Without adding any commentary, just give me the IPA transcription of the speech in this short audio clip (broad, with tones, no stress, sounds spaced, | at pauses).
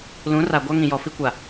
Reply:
l ũ˨˦ r a˨ ɡʷ a˦ ŋ ĩ˨ j ɔ˨ f i˦ kʷ a˨